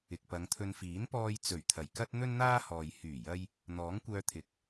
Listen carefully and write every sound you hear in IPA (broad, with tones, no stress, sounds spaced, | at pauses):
ɪ˨ k̚ p ɐ˨˧ ŋ t̪ʰ ɵ˧ n f iː˨˥ n p ɔː˧ j t͡s ɵ˨˩ ɥ t̪ʰ ɐ˨˩ j k ɐ˥ t̚ n̪ ɵ˥ n n̪ aː˥ h ɔː˨ j h yː˨˩ j ɐ˧ j | n̪ ɔː˨˥ ŋ kʷ œː˧ t̪ʰ ɪ˨˥ k̚